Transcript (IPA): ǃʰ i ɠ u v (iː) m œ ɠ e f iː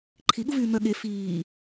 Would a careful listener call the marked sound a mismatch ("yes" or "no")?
yes